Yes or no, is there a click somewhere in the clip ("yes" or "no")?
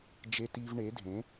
no